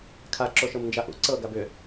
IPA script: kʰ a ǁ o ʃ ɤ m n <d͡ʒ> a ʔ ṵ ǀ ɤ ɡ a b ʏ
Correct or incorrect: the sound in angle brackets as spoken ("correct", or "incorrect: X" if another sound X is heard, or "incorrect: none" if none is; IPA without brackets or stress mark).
correct